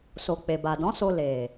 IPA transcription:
s o˨ k͡p e˨ b a˨ d ɔ̃˨˦ s o˧ l e˨

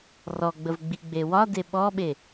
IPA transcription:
r ɔ ɡ͡b ə v ɡ͡b i ɡ͡b e w ɒ d e ɓ ɔ ɓ e

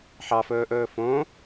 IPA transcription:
ħ ɑ f ɵː ʔ ɵː f õ

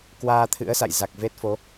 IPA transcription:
k w aː˧ t̪ʰ ɨ̰˧˥ ə̯ s a̰˧˨ j z a˨˩ k̚ v e˦˥ t̚ f o˨˦

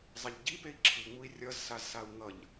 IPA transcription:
zˤ ɛ ʎ ɟ i p e i̯ ǁʰ ɯ ŋ͡m u i̯ rʲ ʌ z s a z s a u̯ ŋ ʌ ʎ

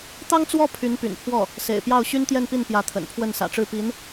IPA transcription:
t̪ ɑ˥ ŋ t͡s w ɔ˥˩ pʰ y˧˥ n p y̰˨˩ n pʰ w ɔ˥˩ | s ḛ˨˩ ɪ̯ p j ɑ˥˩ ʊ̯ ɕ y˥ n t̪ j ɛ˥˧ n p i˥˩ n p j ä˧˥ t̪ʰ ə̰˨˩ n pʰ w ə˥˩ n s ä̰˨˩ ʈ͡ʂ ɻ̩˥˩ p i˧˥ n

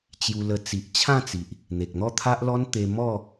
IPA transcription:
t͡ɕ j u˧ l ə˧ t͡s i˨ ʔ t͡ɕʰ ã˥˧ t͡s i˨ ʔ | n̪ e˨ k̚ n̪ ɔ˥˧ t̪ʰ a˦ ʔ l ɔ˦ n t̪ e˧ m ɔ˥˧

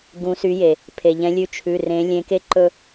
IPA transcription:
ɡ ũ˨˦ s y˨˦ j e˩ | pʰ e˩ ʎ ɛ̃˨˦ lʲ ʉ˨˦ t͡ʃʰ ʉ˩˧˩ r ẽ˨˦ lʲ ẽ˨˦ k e˦ ǃ ɵ˦

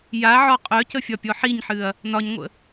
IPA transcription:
j a ʕ ɔ qʼ œ c ə fʲ ɒ pʲ ɔ ħ i ɲ ħ ɨ ɐ̯ | n ɒ ɲ ŋʷ ə̰

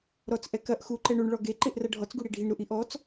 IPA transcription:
ɾ ɔ t͡s ʔ ɛ k ɐ ʔ x u ǃ ɛ ɳ u ɳ ɭ ɔ ɡ e ǃ e ʔ r ɐ ɖʱ ɔ t͡s ɡ u ɽ i ɖʱ i ɳ ɾ u ʔ i ʔ ɔ t͡s

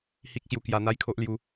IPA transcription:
h i˦ k̚ ɕ j u˧ k j a˧ n̪ a˦ j kʰ o˦ ʔ l j u˦

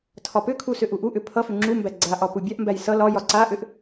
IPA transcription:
tʰ ɒ p ʏ kʰ u s ʏ ʔ u ʔ u ʔ ʏ pʰ ʌ f ʏ ŋ͡ǁ u m b æ ɡ͡ǀ a ʔ ɒ p u bʲ a ʔ m b æ j s ʌ l ɒ j ɒ ǀ a ʔ ʏ ʔ

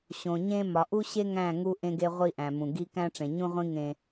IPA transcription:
ɕ õ˨ ɲ ẽ˦ m ɒ˨ ʔ u˦ ɕ e˦ ŋ æ̃˦˨ ŋ u˦ ʔ ẽ˦ ɡ e˦ ʁʷ i˦ ʔ æ̃˨ m ũ˨ ɡ i˦ k æ̃˦ ʈ͡ʂ ẽ˨ ɲ ũ˦ ʁʷ ĩ˦ ŋ ẽ˦

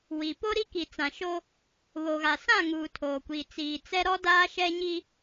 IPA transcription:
w i˨ p o˦ ɾ i˦ k i˨ t͡s ã˨ ʃ o˦ | β o˨ ɣ a˨ s ã˦˨ ŋ uː˨ tʰ oː˨ kʷ iː˨ t͡s iː˨ t͡s ɛ˦ ɾ ɔ˦ d aː˦ ʃ ɛ˦ ɲ i˦

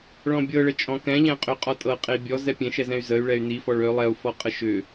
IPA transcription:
ɭ ɔ̃ bʲ ɤ ɭ ə t͡ʃʼ ɔ̃ k ɛ̃ ʎ ɛ̃ qʼ ø qʼ ɔ tʼ ɤ qʼ e i̯ bʲ ɔ z ɛ pʲ ẽ ʃ ɛ z ɛ̃ y̯ z ə y̯ ɭ ɛ y̯ n i f ɔ ɭ ø lˠ ɛ u̯ f ɔ qʼ ə ʃ ʏ

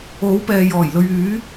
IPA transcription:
o˨˥ w p ɛː˨ j ɔː˨˩ j l ɵ˨˧ ɥ yː˨˥

